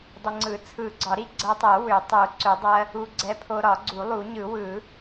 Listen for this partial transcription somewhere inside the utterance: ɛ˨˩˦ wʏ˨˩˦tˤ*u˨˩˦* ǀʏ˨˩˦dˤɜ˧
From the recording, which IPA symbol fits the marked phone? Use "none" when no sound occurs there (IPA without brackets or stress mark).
u˨˩˦